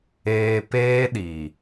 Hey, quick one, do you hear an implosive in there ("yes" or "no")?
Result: yes